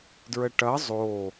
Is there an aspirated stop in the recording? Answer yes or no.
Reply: no